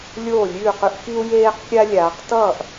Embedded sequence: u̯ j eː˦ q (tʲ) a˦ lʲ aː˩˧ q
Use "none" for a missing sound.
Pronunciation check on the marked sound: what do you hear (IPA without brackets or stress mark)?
kʲ